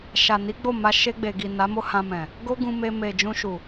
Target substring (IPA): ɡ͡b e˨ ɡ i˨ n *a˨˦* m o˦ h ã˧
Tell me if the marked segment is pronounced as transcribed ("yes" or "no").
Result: yes